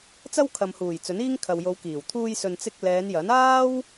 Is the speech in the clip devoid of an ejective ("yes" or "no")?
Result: yes